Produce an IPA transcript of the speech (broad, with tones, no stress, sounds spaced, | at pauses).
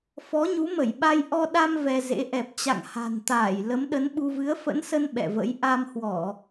f ɔ˨˦ ɲ u˨˦ m ə˧˩ j ɓ a˧ j ʔ ɔ˧ ɗ a˧ m v ɛ˧ z ḛ˧˥ ʔ ɛ˨˩ p̚ t͡ɕ a̰˧˨ ŋ h a̤˨˩ n t̪ aː˧˩ j l ə˨˦ m ɗ ə˨˦ n ɓ u˧ v ɨ˨˦ ə̯ f ə̰˧˥ n s ə˧ n ɓ ɛ̰˧˨ v ə̰˧˥ j ʔ a˧ m h w ɔ˧˩˨